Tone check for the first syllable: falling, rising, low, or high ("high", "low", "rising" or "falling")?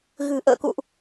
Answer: low